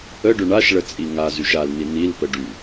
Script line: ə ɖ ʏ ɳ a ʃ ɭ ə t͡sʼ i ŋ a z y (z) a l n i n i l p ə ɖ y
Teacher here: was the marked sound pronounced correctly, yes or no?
no